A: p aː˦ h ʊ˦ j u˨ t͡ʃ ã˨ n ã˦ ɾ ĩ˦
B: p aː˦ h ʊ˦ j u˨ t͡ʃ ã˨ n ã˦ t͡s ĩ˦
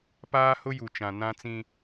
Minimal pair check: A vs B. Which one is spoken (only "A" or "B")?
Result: B